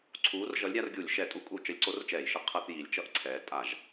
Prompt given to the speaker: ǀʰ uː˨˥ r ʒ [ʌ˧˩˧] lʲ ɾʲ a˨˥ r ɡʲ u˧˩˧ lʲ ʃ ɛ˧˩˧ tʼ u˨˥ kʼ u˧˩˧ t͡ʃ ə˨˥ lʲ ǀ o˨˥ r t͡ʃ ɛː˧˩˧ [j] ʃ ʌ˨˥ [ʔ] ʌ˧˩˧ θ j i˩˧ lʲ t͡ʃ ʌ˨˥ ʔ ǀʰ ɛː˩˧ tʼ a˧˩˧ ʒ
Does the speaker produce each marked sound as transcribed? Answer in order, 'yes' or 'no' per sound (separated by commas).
no, yes, no